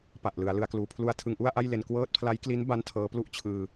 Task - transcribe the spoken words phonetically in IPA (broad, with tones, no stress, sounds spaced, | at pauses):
p a˨˩ ʔ l ɯ˩˦ a̯ l ɯ˩˦ a̯ k l uː˩˦ pʰ l u˧ a̯ tʰ ɯ˧ ŋ ʔ u˥˩ a̯ ʔ a˥˩ j l e˧ n k w ɤː˦˥ t̚ pʰ l a˦˥ j k l i˦˥ n b a˦˥ n tʰ ɤː˦˥ p l u˥˩ ʔ t͡ɕʰ ɯː˧